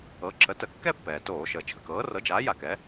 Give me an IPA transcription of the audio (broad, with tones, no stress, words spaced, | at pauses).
ɤ˩˥ǁə˩˥tə˧˩˧ kːɛ˥˧pːɛː˩toː˧˩˧ʃəː˩ t͡ʃʰə˩kɤː˩˥rɤ˩˥d͡ʒaː˩˥ ja˧˩˧kɛ˩˥